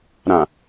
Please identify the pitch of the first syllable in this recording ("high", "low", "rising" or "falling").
low